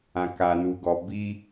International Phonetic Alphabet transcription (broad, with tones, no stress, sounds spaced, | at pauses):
ã˨ k a˨ n u˨ ɡ ɔ˨ b i˦